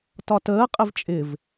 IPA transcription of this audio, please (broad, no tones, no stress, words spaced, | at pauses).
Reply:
tɒtəːqʼɪv t͡ʃʼɪv